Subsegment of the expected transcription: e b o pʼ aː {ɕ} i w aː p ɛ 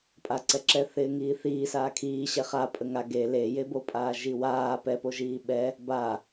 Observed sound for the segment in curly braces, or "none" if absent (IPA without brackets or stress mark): ʒ